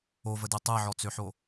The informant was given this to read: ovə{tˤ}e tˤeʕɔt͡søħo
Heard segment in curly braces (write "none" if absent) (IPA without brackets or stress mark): d